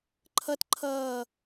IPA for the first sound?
ǃʰ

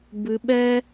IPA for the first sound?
b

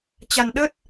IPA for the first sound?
t͡ɕ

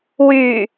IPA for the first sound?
w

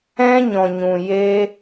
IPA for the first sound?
ɛ̃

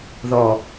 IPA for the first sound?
ð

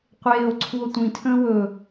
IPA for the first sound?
qʷ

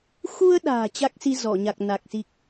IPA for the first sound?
x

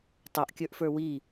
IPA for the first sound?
tˤ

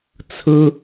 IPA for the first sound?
t͡sʰ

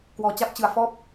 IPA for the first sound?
k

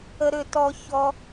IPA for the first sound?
ə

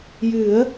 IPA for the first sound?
j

